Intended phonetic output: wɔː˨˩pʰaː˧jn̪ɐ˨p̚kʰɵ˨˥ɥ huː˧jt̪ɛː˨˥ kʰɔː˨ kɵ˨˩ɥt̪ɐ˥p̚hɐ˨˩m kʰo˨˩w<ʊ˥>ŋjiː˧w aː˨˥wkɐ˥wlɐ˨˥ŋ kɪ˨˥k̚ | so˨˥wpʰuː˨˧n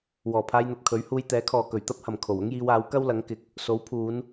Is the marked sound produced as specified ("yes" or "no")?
yes